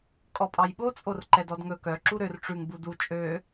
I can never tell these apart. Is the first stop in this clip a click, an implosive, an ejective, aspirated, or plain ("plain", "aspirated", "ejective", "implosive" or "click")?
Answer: ejective